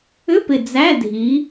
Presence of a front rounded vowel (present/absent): present